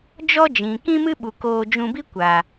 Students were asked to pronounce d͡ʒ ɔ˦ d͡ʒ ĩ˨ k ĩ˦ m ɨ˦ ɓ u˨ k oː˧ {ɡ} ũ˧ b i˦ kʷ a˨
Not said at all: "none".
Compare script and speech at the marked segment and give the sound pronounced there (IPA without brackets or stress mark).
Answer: d͡ʒ